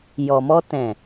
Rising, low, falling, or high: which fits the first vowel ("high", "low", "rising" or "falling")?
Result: low